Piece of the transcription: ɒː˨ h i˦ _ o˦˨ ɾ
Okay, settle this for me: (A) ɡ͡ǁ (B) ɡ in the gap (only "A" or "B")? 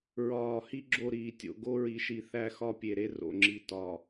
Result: A